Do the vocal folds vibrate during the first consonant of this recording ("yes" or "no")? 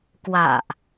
no